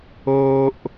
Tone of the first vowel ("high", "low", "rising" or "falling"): high